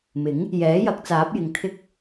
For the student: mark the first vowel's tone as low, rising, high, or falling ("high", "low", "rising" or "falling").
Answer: rising